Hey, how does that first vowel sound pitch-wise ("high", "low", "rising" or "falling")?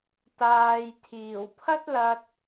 low